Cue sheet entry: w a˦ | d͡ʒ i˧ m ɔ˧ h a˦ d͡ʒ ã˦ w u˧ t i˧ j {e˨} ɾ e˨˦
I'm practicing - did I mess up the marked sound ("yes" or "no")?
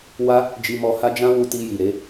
yes